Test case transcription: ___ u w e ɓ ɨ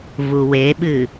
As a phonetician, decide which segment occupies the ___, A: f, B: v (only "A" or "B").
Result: B